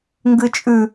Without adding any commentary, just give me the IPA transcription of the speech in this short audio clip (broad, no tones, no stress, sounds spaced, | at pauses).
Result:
ŋ ɡ ɨ t͡ʃʼ ʉ